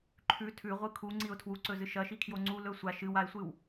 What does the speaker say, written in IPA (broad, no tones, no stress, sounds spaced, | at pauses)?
ǃʰ ʉ tʰ ʉ ʁʷ ɨ kʰ u ŋ͡ǀ i ʊ̯ tʰ w u ǀ ɵ z ɨ ʃ ɐ ʃ i kʰ j o ŋ͡ǀ u l ɵ sʷ a ʃ ɨ w a ɪ̯ sʷ ɨ w